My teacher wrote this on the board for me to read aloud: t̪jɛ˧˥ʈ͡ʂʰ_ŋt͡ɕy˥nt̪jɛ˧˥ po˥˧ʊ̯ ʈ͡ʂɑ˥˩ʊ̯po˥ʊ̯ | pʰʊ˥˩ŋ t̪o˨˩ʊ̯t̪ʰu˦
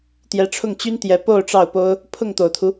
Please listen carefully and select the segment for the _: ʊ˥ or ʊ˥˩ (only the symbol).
ʊ˥˩